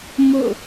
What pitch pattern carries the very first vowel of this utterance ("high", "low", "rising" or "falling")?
falling